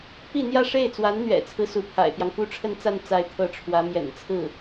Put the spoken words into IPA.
pi˥˧n̪jä˥˧ ʂe˥˩ɪ̯t͡swa˧˥nn̪ɥɛ̰˨˩t͡sʰɹ̩˦ su˧˥ pʰa̰˨˩ɪ̯pjɑ˦ŋfu˥ ʈ͡ʂʰə˥˧nt͡sa˥˧n t͡sa˥˧ɪ̯t̪ʰɤ˥˩ ʈ͡ʂʰwä˧˥ mjɛ̰˨˩nt͡sʰɹ̩˥˩

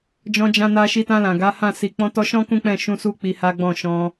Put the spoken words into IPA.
d͡ʒɔ̃˧d͡ʒã˧ na˧ʃi˧tã˧ lã˨ ɡa˨˦hã˦˨si˨ k͡pɔ̃˧tɔ˧ʃɔ̃˦ kũ˦k͡pɛ̃˦˨ ʃũ˧su˧ k͡pi˧ha˦ɡ͡bɔ̃˦˨ ʃɔ̃˧

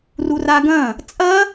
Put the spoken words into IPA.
ruraɡɐ̃ | t͡sʼɐ

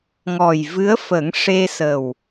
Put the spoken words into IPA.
ŋɔ˨˩jvɨ˧˥ə̯fə˨˩˦ŋ ʂe˧sə˨˩w

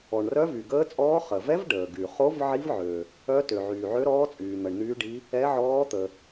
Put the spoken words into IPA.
ɔ˩ɳrœ˧˥ vy˩ɡəː˧˥t͡sʼɔː˧˥ χə˩vɛ˧˥v ɖəː˩ɡy˩χo˧˥v ʕi˧˥vʕø˩ | œ˧˥tø˩ ʕyː˩ʕø˧˥ɾɔː˧˥ t͡sʼyː˩n̪ə˩ɳn̪yː˧˥ɖi˧˥ | ɛ˧˥ʕɔː˧˥t̪ə˩

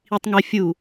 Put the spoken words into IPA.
itˤŋɛ fʲu

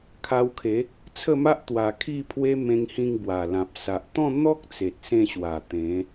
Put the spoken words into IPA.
kʰa˧wkʰe˨˦ | t͡sʰə˥˧ma˦ʔ t̪wa˧kʰi˥˧pʰwe˦ mẽ˧ŋhĩ˧ŋ bwa˨˩lã˨p̚ sa˨ʔt̪ɔ̃˥˧n̪ɔ˦k̚ t͡se˨t̚sẽ˧ɕwa˨˩ t̪ẽ˨˦

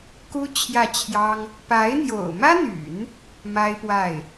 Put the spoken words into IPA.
ku˥ t͡ɕʰjä˥˩t͡ɕʰjɑ˥ŋ | pa˧˥ɪ̯n̪jo̰˨˩ʊ̯mä˥n̪y̰˨˩˦n | ma˥ɪ̯pwa˥˩ɪ̯

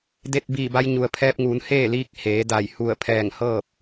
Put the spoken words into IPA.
de˧t̚biː˧˩ ba˧jɲu˩ə̯pʰɛː˧p̚ŋuː˩˧n heː˥˨liː˧˥k̚ heː˩˧da˧˩j hu˧˩ə̯ pʰɛː˧˩ŋhɤː˥˨p̚

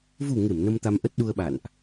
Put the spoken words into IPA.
vu˨˩ ŋe˧˩m nə˧mt̪a˧m ʔə˦˥t̚ɗu˧ə̯ɓa̰˧˨nʔ

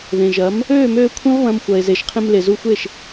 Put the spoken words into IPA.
ðẽ˨ʒɐ˨˦m | øː˦˨møː˧ kʷʰɐ̃˦vβɐ̃˧m xʷɐ˧e̯ze˧ʃ qʰẽ˧mle˨zu˧xʷe˦˨ʃ

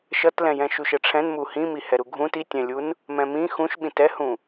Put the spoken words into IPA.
ʃʌtlɛ̃jɛ̃ ʃuʃɛʈ͡ʂʰɛ̃n muhĩ mihɛɾuɡʱũt itʲɛ̃lʲun | mɛ̃mĩ xũʃ ɓĩtɛhũ

